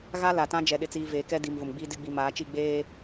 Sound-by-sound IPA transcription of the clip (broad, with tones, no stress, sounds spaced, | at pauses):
ɣ a˦ l a˨ t ã˦ d͡ʒ ɛ˨ ɗ ɪ˨ t͡s iː˨ v eː˨ k ɛ˦ d i˨ m v ʊ˨ m ɡ͡b iː˦ d ɪ˨˦ ɡ͡b i˨ m aː˨˦ t͡ʃ i˦˨ ɡ͡b eː˦